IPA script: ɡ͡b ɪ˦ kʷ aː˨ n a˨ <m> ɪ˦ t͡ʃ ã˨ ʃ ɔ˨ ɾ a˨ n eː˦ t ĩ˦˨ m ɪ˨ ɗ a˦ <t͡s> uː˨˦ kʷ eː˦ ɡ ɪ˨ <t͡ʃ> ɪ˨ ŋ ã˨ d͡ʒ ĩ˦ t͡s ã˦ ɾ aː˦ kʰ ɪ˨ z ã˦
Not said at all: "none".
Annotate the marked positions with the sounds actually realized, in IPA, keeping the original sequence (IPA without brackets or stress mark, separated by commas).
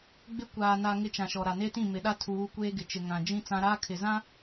ŋ, tʰ, t͡ʃ